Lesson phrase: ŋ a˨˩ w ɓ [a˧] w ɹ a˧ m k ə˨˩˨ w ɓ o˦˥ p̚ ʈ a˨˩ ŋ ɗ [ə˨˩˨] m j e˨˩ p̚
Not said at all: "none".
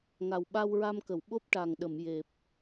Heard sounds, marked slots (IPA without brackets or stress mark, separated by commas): a˧, ə˨˩˨